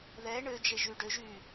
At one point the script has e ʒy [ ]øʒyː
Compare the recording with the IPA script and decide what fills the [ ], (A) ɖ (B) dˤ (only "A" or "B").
A